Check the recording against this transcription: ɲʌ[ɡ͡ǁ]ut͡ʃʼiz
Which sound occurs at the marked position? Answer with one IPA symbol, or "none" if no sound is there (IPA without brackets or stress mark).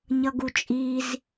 ɡ